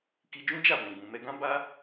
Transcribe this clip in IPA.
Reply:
k i˧ d͡ʒ ũ˦ d͡ʒ a˦˨ b ɛ̃˨ ɡ͡b ũ˨ m ɛ˧ ɡ ã˦ b a˦

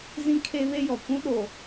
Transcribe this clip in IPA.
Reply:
z ĩ˦ kʰ eː˦ β e˦ j ɔ˨ kʷ ũ˦ ɗ oː˨

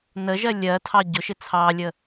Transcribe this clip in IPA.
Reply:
n ə ʒ ɜ lʲ ɜ tʰ ɑ ɟ ʊ ʃ ɪ t͡sʰ ɑ lʲ ə

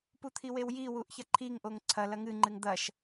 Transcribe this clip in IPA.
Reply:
p u t̪ʰ i w e w j i w u ʔ ç ɐ ǃʰ i ŋ ʔ o ŋ ǀʰ ɐ l ɐ ŋ ɨ ŋ͡ǃ ɨ ŋ d̪ ɐ ʃ

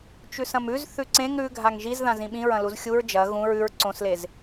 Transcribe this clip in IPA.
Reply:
t͡ʃ ʉ s ɐ̃ m ʉ z θ ʉ ǀ ẽ ŋ ɾ ʉ ɡʱ a ŋ ʒ i z ð ã z ĩ ɓ ĩ ɹ ɐ̃ l u z xʲ u ɹ d͡ʒ ɐ ɣ ũ ɹ ʉ ɹ ǀ õ s l e z

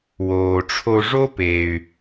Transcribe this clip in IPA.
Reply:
w oː˩ ʈ͡ʂʰ o˧ ʐ o˥ p e˩ y̯

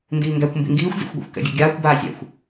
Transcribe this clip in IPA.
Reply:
n d iː ŋ ɡ æ kʷ m b ḭ ŋ ɡ iː xʷ zʲ æ̰ xʷ ɡʷ ḭ xʷ k ɛ̰ ɡʲ ɛ̰ ɡʲ aː kʷ b aː zʲ æ̰ xʷ

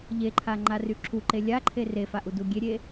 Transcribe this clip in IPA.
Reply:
ʎ e ǃʰ a ŋ͡ǃ a r y ǁʰ u ǃ e lʲ a ǃʰ e r e f a ʔ u d u ɡʲ e ɾʲ e

